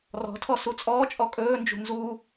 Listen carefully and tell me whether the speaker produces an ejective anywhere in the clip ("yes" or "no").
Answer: yes